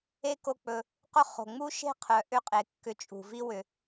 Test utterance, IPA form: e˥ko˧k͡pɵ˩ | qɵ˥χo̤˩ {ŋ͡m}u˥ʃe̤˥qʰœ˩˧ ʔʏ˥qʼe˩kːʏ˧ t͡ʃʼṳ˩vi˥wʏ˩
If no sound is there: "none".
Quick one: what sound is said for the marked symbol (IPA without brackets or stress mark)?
ŋ͡m